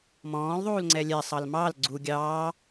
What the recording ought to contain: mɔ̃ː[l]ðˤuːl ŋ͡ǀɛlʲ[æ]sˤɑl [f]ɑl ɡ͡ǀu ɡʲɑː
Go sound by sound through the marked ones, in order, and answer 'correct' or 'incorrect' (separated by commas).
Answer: correct, incorrect, incorrect